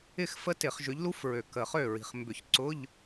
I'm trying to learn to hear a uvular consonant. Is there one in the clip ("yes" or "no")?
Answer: yes